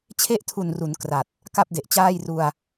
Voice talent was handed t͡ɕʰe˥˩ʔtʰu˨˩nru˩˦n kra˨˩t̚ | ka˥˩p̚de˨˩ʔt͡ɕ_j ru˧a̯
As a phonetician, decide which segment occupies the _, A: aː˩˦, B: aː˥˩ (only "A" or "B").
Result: B